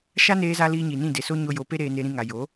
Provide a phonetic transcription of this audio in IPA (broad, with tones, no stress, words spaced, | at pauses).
ʃa˦neː˧za˧ liː˧ɲi˨nĩ˦˨ de˨so˦ ɲo˧jo˨˦pe˦ ɾeː˧ne˧ɾĩ˧ŋa˨ jo˨˦